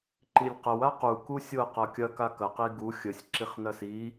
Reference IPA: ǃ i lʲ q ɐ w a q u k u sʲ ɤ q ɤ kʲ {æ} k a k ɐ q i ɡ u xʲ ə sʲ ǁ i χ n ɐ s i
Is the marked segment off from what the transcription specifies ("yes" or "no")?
yes